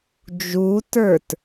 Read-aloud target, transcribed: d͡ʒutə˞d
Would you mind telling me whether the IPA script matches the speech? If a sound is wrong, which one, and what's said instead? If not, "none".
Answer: d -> t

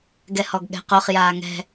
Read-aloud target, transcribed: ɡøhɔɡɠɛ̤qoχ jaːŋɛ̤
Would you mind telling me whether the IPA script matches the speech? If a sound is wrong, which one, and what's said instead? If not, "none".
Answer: ø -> ɛ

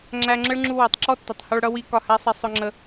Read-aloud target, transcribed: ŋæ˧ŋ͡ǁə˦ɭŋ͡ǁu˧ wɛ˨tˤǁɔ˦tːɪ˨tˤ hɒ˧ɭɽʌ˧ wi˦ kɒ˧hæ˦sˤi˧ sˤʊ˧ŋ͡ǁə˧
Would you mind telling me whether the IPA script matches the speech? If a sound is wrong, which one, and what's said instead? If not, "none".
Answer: ŋ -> ŋ͡ǁ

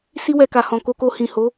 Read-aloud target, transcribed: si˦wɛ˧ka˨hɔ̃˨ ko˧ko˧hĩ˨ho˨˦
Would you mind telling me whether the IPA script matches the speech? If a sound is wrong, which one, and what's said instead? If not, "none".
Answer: none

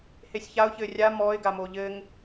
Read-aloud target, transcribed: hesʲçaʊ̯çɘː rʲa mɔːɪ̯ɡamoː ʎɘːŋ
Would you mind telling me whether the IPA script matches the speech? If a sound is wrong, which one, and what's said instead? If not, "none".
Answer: none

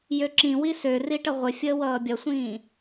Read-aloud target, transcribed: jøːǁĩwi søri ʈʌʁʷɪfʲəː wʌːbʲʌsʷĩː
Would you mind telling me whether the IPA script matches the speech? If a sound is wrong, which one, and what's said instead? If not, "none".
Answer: øː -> ø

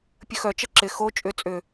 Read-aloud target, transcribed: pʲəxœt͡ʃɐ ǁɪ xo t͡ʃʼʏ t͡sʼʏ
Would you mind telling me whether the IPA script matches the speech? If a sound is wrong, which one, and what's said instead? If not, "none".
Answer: none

